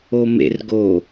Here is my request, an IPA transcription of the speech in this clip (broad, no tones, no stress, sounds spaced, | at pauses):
o m ḛ r ɡ o